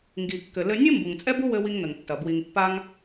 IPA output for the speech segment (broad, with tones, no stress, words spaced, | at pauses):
ŋɡi˩ kːɘ˩ lɘ˧nʲɨ˥ mbu˩ŋt͡sʼɛ˥bu˥wɘ˧ wi˧ŋn̪ɘ˩ŋ tːɐ˩ bwi˩ŋpːa˧ŋ